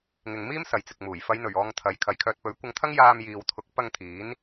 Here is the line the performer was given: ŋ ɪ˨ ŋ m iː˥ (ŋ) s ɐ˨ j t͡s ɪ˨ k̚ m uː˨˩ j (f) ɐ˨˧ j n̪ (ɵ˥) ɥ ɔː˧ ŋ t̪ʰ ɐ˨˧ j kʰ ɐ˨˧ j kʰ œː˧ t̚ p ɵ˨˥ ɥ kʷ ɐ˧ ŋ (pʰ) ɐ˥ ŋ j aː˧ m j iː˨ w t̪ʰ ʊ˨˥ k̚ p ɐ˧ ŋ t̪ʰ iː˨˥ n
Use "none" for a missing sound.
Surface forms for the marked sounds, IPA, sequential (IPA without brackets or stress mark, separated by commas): m, f, ɵ˨˩, t̪ʰ